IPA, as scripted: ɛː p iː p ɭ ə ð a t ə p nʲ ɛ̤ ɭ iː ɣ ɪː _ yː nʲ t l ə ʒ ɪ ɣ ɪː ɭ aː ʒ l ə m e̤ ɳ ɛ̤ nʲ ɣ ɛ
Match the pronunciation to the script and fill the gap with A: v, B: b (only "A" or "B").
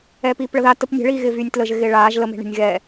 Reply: A